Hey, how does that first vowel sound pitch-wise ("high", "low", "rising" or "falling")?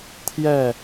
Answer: falling